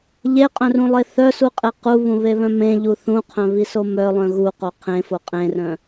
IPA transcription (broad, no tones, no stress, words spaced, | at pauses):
ʎeqʼœ̃rũlˠe θœsuqʼe quβũβeβœ̃ mẽʎu θũqʰœ̃βiso mœlˠœ̃ ɣuqo qʰẽfo qʼẽrœ̃